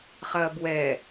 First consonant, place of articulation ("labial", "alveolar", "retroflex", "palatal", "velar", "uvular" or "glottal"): uvular